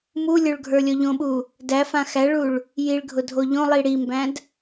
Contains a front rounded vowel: no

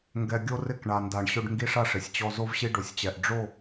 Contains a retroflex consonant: yes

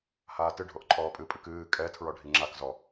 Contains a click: yes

